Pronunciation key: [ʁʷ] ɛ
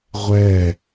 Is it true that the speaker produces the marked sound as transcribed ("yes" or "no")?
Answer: yes